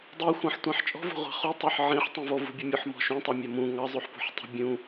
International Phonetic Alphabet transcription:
dˤ i xʷ ɑ̃ ħ tʷ ɑ̃ ħ t͡ʃʼ ɔ̤ v ɔ̤ ʁʷ ɑ̤ χ u tˤ ɜ ħ ʕ ĩ ħ tˤ ĩ v ɔ v ṳ bʲ ʊ mʲ ɔ ħ m ɔ̤ ʃ ũ tˤ ɜ mʲ ɜ m ũ ŋ ɑ zˤ u ħ p ṳ ħ tˤ ṳ bʲ ũ

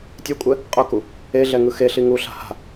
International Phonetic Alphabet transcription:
tʲ ɛ kʷʼ ɛ | qʼ ʌ k u | e ɮ ɛ ŋ ɯ x e ɬ i ŋ u ɬ a̤ h a̤

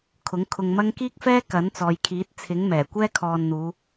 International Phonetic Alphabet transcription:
kʰ ʊ˨˥ ŋ kʰ ʊ˧ ŋ m ɐ˥ ŋ k iː˥ k̚ f ɛː˥ k ɐ˨˥ n t͡s ɔː˨ j kʰ iː˨˥ t̚ t͡sʰ ɪ˨˥ ŋ m ɛː˨˩ kʷ ɛː˥ kʰ ɔː˧ n n̪ uː˨˧

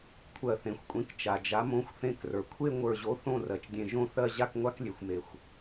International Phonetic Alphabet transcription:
kʷʰ ɜ˧˩ θ ẽ˩ xʷ kʷʼ ẽ˨˥ k t͡ʃ a˩ d͡ʒ a˨˥ m õ˨˥ xʷ θ ẽ˧˩ k r ə˞˩ kʷʰ e˥˧ ŋʷ ə˞˧˩ ʑ o˨˥ θ õ˥˧ r ɜ˩ t͡ʃ dʲ ẽ˧˩ ʒ õ˥˧ θ ɜ˥˧ ʑ a˥˧ k ŋʷ a˥˧ k lʲ e˩ xʷ m e˩ xʷ

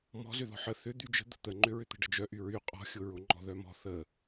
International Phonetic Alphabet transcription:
m ɔ̤ z ʏ ð ɔ̤ ħ ə θ ʏ d̪ y d͡ʒ ə̤ d̪ ə̤ t̪ ə ŋ͡ǃ ʏ ɹ ʏ t̪ ə̤ ɖ ə̤ d͡ʒ œ ʔ y ɹ y qʼ ɔ̤ xʲ ʊ ɹ ʊ ŋ͡ǃ ɔ̤ ð œ m ɔ̤ θ ə

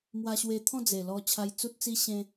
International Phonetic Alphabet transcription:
m w a˧ ɕ w e˧ t̪ʰ ɔ̃˥˧ d͡z e˨˩ l ɔ˧ t͡ɕʰ a˧ j t͡s u˦ t̚ t͡s i˦ ɕ ẽ˦

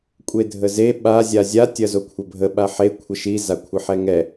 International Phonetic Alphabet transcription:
kʷʼ e dʱ ə z e ɓ a zʲ a zʲ a tʲ ɐ z o kʷʰ ə bʱ ə ɓ a ħ e kʷʰ ə ʃ i z a kʷʰ ə ħ ɛ ŋ ɛ

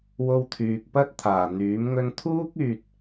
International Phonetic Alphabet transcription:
w o˧ w t̪ʰ yː˨ k̚ p ɐ˥ t̚ t̪ʰ aː˨˩ n̪ yː˨˥ m ŋ ɵ˥ n t̪ʰ uː˥ k̚ yː˨ t̚

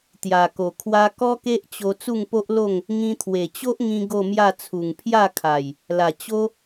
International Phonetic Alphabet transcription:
t̪ j a˨˩ k o˨˩ kʰ w a˦ k ɔ˦ k e˦ ʔ t͡ɕ o˧ t͡s u˥˧ ŋ p o˦ ʔ l o˥˧ ŋ | ŋ ĩ˧ t̪ʰ w e˨˩ t͡ɕ o˦ ʔ ŋ ĩ˧ ɡ o˥˧ m j a˥˧ t͡sʰ u˨˩ ŋ pʰ j a˥˧ kʰ a˨˩ j | l a˨˩ t͡ɕ o˦

